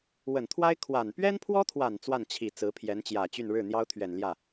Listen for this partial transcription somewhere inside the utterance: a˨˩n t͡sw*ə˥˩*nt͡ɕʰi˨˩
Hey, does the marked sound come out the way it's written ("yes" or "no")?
no